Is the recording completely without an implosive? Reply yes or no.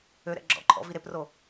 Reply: yes